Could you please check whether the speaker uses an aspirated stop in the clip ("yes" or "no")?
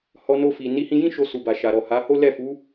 no